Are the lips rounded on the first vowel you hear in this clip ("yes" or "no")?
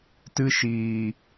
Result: no